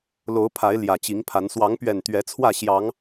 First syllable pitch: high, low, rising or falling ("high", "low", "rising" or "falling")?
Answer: rising